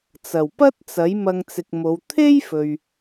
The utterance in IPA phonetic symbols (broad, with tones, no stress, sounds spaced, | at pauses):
t͡s ɐ˨˩ w p ɐ˥ t̚ t͡s ɐ˨˥ j m ɐ˧ ŋ t͡s ɪ˨ k̚ m o˨˧ w t̪ʰ e˥ j f ɵ˨ ɥ